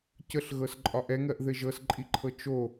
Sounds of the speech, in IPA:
c ə ɬ ɣ ɤ s ǃʼ ɒ ʔ ɛ ŋ ɜ ʔ ð ɘ ʒ ɤ s ǃʼ i ǃʰ ɤ t͡ʃ o

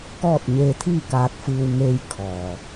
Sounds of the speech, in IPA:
k ɔː˥˨ t̚ ɲ eː˧ t̪ʰ iː˥˨ k aː˧ t̚ f ɯː˧ w ŋ eː˧ j kʰ ɔː˩

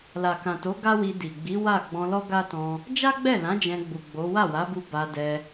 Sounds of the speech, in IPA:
l a˨ k ã˨ t o˨˦ ɡ a˦ w i˧ d i˨ ɡ͡b i˨˦ w a˦˨ ɡ͡b ɔ̃˧ l ɔ˦ ɡ a˦ t ɔ̃˧ | d͡ʒ a˦ ɡ͡b ɛ˦˨ l ã˨˦ d͡ʒ ɛ̃˧ ɡ͡b u˨ ɡ͡b o˨˦ w a˦˨ w a˨˦ b u˧ b a˧ d ɛ˧

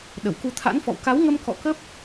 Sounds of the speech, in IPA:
ɗ ə˧˩ w k u˧ t̪ʰ a̰˧˥ n f ɔ̰˧˨ w k a˨˦ w ŋ ə˧ m k ɔ̰˧˨ k ə˦˥ p̚

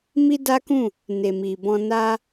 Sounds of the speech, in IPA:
m i˦ d a˦ k ũ˦˨ | n e˨ m i˨ b ɔ̃˧ n a˦

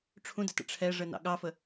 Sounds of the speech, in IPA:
ʈ͡ʂʰ ũ d ə t ə̰ ʈ͡ʂʰ ɛ ʐ ə n ɑ̰ ɠ ɑ f ə

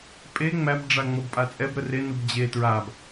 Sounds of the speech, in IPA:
pʼ e ŋ͡m æ b ɖ͡ʐ a ŋ͡m ɔ b pʼ a t͡sʼ ɛ b ɾ ə r e n u b d͡ʑ e t ɹ a b

